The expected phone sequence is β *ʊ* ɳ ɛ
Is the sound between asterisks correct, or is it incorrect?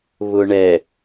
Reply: correct